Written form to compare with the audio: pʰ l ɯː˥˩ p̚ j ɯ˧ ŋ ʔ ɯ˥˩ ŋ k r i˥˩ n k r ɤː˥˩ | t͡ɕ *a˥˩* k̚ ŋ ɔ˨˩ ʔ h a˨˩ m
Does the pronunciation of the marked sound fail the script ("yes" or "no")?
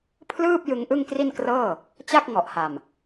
no